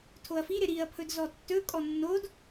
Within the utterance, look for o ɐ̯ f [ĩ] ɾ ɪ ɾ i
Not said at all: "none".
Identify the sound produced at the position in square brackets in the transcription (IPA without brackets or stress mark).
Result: i